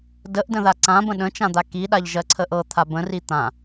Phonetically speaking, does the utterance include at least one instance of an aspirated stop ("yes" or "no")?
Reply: yes